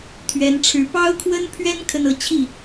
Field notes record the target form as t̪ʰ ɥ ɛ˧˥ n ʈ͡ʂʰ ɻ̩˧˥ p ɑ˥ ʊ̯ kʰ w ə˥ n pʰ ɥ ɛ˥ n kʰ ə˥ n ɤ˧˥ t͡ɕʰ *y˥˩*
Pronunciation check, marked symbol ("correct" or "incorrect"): incorrect